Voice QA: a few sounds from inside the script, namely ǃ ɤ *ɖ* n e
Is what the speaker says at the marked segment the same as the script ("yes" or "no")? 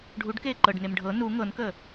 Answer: yes